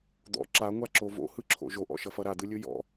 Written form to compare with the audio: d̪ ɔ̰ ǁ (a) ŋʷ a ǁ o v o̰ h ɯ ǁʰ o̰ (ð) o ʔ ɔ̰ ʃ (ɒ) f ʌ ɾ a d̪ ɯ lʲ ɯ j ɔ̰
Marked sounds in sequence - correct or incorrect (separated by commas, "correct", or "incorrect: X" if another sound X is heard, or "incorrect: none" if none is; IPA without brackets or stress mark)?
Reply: correct, incorrect: ʒ, incorrect: ʌ